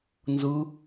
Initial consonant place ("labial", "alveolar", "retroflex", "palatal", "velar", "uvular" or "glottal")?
alveolar